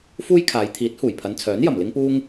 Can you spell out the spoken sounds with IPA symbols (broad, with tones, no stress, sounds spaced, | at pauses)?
f uː˥ j kʰ aː˨˧ j t̪ʰ iː˨˥ t̚ h uː˨˩ j pʰ ɐ˨˧ n t͡sʰ œː˨˥ n j ɐ˨˩ m l ɪ˥ ŋ p uː˥ ŋ